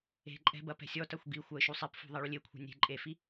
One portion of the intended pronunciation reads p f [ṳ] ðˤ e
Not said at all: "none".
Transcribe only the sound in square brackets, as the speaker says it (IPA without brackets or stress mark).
ṳ